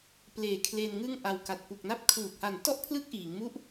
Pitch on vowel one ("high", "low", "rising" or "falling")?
low